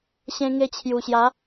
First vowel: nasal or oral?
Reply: nasal